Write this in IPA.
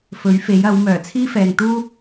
fɵ˨˥ɥfe˨˥j ɐ˨˥w mœː˨˩t͡sʰiː˥fɛː˨ŋt̪uː˥

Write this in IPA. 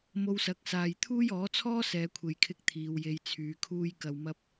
mo˧wsɐ˨˥k̚saː˨j t̪ʰuː˥jɔː˨˥t͡sʰɔː˥ sɛː˨˧kʷʰe˨jkʰɪ˧k̚ t̪ʰiː˨˧wje˧j t͡sʰyː˧kʰuː˥j kɐ˨wmɐ˧p̚

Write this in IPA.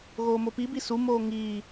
ɣoːmopibi sumoː ŋiː

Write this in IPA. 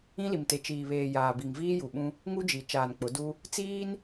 ĩ˦li˨mte˨ t͡ʃiː˨βeː˨ jaː˨bi˨ŋ viː˦ju˨ɓũ˦ | ŋu˦d͡ʒi˨ t͡ʃaː˨nk͡pʊ˨˦du˦ | t͡siː˦n

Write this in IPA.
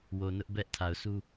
wo˨nʊ˦ʔ bɛ˦ʔ tʰa˨ʊ̯sʰu˦

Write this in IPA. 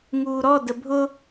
ŋuːɾɔdə bʱʊ

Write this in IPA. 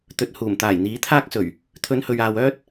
t̪ɵ˨t̚ huː˨˩mt̪aː˨˩jn̪iː˨˥t̪ʰaː˥k̚ sɵ˨˩ɥ | t̪ʰɵ˨˧nhɵ˨ɥaː˨w œː˥t̚

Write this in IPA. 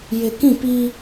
jɪ˨kĩ˦˨pi˦

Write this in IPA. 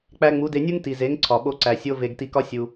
k͡pæ˧ŋ͡mu˨˦de˧nʲu˦ŋ ti˨ze˨˦ŋ ǀʰɒ˨ɓo˧ǀæ˨ sʲo˦ve˧ɡ ti˧kɒ˦ sʲu˧

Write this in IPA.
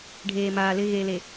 ɖʱeː˨maː˨lɪ˦ ɣeː˨le˨

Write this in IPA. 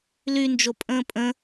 lynd͡ʒo pʼə̃ːpʼə̃

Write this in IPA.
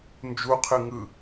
nd͡ʒuqʰɯ ŋɯ

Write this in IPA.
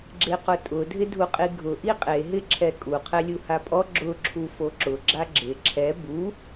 ɡ͡ǁeqʊtʼʊ dʱɪdʱuqʼiɡʱʊ ʔiqʼe ɦɪǁʰɛkʼu qʰɛlʲuhapʼɔ ɡ͡ǁʊ ǁʰufoǁʊ ɡ͡ǁaɡ͡ǁɪ ǁʰɛ bu

